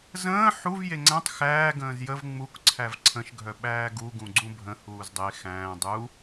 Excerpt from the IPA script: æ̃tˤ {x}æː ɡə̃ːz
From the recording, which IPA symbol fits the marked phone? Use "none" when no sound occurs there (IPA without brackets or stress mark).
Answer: x